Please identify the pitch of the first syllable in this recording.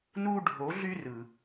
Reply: high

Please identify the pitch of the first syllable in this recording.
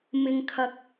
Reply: low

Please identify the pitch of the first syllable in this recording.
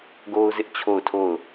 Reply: high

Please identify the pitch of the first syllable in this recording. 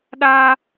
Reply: high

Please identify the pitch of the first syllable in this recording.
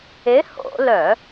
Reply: rising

